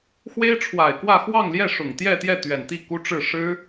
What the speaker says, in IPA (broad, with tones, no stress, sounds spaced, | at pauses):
x w e˥ ɪ̯ ʈ͡ʂʰ w a˨˩ ɪ̯ k w ä˥˧ x w ɑ˥˧ ŋ l j ɛ˥˩ ʂ ʊ˨˩ ŋ t̪ j ɛ˥˧ t̪ j ɛ˥˩ t̪ ɥ ɛ˨˩ n t̪ i˥˩ k u˥ ʈ͡ʂ ɻ̩˥˩ ʂ ɻ̩˥